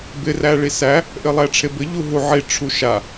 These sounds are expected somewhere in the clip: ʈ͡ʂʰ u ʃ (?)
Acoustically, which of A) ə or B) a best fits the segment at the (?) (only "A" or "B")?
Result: B